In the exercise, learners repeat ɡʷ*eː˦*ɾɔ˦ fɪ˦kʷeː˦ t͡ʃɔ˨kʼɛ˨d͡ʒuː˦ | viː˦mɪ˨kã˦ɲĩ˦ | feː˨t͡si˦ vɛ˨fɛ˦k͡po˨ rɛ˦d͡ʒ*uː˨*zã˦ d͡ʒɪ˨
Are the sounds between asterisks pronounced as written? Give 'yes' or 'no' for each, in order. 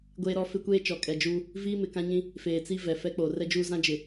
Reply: yes, no

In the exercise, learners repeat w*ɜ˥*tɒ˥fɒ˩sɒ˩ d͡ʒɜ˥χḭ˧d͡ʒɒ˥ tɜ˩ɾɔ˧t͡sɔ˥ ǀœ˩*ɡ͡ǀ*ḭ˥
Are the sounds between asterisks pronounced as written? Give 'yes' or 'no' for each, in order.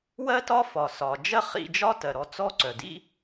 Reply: yes, no

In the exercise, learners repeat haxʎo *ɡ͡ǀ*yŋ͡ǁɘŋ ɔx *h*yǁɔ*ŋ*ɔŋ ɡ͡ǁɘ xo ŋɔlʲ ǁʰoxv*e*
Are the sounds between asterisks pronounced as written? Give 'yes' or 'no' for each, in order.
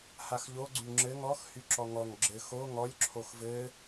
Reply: yes, yes, yes, no

